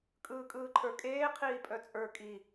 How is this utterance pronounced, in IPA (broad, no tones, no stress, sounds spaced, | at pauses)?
kʼ ɯː kʼ ɯː ǃʰ ə˞ kʼ eː qʰ iː pʼ œ t͡sʼ ə˞ kʼ i